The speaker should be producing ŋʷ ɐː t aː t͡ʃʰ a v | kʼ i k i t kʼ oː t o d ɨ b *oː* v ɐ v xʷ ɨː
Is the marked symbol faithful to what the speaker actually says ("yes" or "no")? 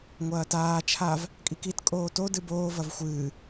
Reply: yes